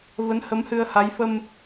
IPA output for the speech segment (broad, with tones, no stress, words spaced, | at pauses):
və˨˦nhə˨˦m hɨ˧ə̯ ha˨˦jfə˧m